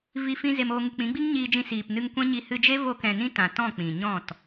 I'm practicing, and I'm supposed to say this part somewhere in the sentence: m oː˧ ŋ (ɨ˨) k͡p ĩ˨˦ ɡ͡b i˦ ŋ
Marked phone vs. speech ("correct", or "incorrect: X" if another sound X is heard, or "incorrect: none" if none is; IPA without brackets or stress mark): incorrect: ɨ˧